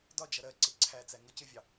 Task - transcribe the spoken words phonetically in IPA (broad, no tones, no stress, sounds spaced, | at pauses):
d ɒ d͡ʒ ʌ ɾ ɜ ǀ ɪ ǀʰ æ t͡s æ ŋ ʌ c ɪ vʲ ɑ